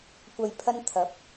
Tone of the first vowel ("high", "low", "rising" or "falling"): low